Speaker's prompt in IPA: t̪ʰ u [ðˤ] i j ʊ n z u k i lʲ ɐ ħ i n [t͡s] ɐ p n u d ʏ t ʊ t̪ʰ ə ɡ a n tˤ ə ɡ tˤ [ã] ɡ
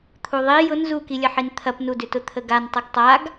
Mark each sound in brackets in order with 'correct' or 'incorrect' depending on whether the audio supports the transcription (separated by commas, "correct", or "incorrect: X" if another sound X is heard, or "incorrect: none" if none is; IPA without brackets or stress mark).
correct, incorrect: t̪ʰ, incorrect: a